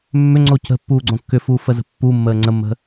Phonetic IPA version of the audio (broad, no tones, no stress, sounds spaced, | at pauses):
mː ʏ ŋ͡ǀ o c ə̤ pː uː ɡ͡ǀ õ kː ʏ f uː f ə z ə̤ pː u mː əː ŋ͡ǀ ə mː ə̤